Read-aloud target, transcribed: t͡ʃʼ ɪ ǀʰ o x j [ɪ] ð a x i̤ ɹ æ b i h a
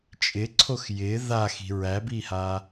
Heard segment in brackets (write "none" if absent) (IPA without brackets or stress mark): ɪ